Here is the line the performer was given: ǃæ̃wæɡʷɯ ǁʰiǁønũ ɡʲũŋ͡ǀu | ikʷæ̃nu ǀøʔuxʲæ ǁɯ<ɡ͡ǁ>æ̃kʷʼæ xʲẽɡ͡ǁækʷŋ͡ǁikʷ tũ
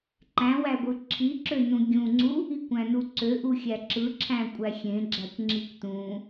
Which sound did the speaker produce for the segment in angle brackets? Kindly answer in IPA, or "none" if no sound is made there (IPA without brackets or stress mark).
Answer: ǁʰ